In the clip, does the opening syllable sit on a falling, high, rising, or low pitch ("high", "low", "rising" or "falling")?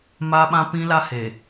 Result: high